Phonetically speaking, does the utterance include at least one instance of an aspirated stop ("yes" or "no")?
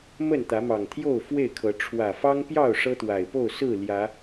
yes